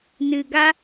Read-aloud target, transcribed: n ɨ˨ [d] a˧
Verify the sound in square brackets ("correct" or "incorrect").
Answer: incorrect